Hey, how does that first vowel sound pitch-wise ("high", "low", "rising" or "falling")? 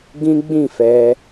high